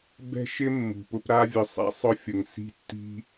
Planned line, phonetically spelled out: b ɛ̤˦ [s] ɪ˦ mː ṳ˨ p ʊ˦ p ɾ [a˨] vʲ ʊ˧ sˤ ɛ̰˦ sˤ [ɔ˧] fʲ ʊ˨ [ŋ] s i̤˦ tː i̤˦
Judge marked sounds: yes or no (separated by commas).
no, no, no, yes